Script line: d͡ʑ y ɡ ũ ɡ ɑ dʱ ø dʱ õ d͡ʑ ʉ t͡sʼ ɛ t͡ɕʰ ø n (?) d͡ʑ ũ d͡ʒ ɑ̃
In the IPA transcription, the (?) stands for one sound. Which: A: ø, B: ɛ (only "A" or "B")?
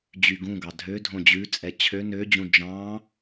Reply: A